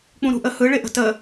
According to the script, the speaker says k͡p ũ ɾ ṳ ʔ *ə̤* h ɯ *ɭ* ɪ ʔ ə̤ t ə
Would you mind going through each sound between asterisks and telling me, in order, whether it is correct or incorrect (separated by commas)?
incorrect, correct